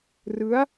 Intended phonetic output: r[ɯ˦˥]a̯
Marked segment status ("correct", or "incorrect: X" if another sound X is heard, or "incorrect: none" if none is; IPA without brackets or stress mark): correct